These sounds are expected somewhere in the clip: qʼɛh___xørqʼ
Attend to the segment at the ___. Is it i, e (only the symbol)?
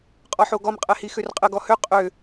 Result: i